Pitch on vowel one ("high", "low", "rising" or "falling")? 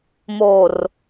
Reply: low